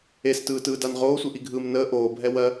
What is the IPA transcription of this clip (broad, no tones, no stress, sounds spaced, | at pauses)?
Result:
e s t ɯː t ɯː d a n ʁ oː sʷ ɯ ʔ i ɡʱ ɯː m n əː ʔ oː bʱ ɛ w ɜ